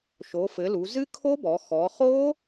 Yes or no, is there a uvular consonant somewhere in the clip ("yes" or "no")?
yes